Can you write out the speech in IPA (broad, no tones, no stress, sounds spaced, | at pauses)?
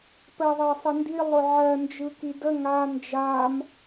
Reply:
p ɜ ðˤ ɜ sˤ ə n d i lˠ ʊ ʕ ɜ n d͡ʒ ɯ k i d ə ŋ a n d͡ʒ a m